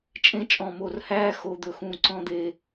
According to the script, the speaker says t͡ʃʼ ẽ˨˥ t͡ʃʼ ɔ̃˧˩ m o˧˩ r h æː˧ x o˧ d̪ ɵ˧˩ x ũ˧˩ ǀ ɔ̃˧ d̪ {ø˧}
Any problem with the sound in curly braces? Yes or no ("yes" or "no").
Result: yes